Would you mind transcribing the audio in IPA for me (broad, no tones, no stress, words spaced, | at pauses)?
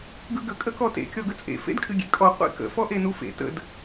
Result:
ɡɯɡə kʼəkɔtḛ kʲɔɡət͡sʼḛ fḛdkʼɨɡʲḛkʼɔ qʷḛkə̰ fɔʔenufḛ tə̰d